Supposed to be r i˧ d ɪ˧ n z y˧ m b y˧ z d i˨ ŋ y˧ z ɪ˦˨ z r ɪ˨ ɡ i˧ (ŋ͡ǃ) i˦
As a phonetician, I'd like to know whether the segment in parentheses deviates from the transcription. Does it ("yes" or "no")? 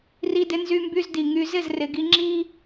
yes